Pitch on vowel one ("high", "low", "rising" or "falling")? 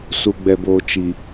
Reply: low